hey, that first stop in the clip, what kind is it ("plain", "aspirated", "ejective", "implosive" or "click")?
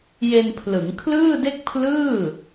aspirated